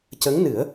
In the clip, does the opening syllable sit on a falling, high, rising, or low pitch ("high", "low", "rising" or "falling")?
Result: rising